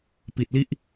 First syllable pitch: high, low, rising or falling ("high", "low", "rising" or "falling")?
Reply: low